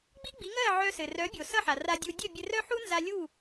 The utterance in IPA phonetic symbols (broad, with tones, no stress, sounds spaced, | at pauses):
ɡ͡b i˥ ɡ͡b i˩˥ ŋ ɜ˥˩ ʕ œ˧ s ɘ˩ r œ˩˥ bʲ o˩ s ʌ˥˩ ħ a˩ r a˧ dʲ u˧ dʲ ɘ˥˩ bʲ ɘ˧ r œ˥ ħ u˥ n z a˧ lʲ u˥˩